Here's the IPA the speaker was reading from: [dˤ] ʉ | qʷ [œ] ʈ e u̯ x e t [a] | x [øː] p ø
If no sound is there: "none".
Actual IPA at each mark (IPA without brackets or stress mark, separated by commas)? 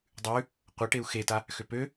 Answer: dˤ, œ, a, ø